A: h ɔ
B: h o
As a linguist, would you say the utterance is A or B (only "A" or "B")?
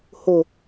B